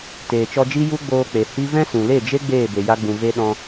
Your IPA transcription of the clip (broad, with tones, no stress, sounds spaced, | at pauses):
t eː˨ t͡ʃ ɔ˧ d͡ʒ i˦ j u˦ ɡ͡b oː˧ k͡p e˨ h i˦ v ɛ̃˦ s ũ˨ l e˦˨ d͡ʒ e˦ ɡ͡b eː˦˨ b e˨ j a˧ ɡ͡b ũ˨ v e˧ ɗ ɔ̃˧